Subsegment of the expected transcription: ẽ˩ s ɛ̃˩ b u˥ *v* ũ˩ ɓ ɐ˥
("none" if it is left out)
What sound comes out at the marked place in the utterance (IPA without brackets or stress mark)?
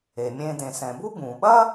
b